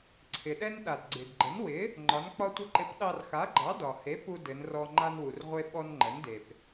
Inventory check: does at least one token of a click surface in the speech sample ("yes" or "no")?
yes